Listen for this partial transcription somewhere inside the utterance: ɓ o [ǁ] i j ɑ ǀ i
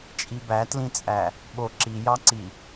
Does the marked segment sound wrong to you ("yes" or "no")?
no